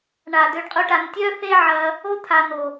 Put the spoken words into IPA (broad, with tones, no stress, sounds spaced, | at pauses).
ɳ a˨ d̪ ø˧ ɖ qʼ ʊ˦ ʈ a˧ n tʲ œ˦ θ e˦ ʕ ɐ˧ | o˦ t̪ʰ a˨ n o˨